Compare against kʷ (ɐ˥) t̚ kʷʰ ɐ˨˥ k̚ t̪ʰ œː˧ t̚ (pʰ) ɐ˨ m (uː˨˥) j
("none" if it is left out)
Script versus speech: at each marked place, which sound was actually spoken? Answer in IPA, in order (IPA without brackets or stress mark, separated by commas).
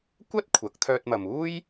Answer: ɐ˥, m, uː˥